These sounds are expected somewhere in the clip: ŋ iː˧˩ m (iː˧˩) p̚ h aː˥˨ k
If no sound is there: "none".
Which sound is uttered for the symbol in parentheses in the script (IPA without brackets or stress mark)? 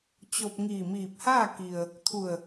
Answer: iː˧˩